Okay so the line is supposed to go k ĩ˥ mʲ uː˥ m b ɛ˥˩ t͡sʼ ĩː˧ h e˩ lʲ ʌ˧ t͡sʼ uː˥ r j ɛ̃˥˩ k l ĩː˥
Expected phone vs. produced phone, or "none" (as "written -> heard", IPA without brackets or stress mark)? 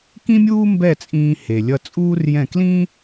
none